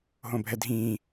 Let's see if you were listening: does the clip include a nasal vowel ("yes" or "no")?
yes